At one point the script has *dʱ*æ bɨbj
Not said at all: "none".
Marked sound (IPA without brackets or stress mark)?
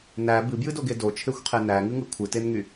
n